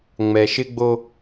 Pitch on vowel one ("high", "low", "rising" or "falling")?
low